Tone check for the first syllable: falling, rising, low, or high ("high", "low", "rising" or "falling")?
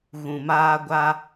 low